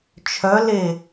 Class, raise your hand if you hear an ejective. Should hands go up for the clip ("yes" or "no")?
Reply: no